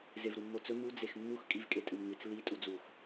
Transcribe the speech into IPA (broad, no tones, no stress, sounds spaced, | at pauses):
z e v ɾ u mː o t͡s ɵ m u d͡z e x mː u x kʼ i v kʼ e tʼ ɨ m ŋ ɨ t͡s l i tʼ u d͡z u x